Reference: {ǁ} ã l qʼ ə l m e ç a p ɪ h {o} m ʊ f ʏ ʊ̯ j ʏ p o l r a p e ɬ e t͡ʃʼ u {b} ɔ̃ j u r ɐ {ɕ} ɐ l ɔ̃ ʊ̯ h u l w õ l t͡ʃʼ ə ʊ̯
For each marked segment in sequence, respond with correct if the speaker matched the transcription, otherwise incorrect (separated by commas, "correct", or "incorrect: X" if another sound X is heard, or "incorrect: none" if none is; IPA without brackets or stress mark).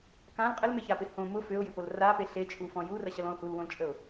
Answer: incorrect: k, incorrect: õ, incorrect: f, correct